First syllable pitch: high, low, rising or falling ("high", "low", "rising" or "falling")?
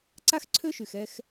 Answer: high